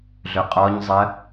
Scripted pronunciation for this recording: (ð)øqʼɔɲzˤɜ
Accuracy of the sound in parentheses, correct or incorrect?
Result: incorrect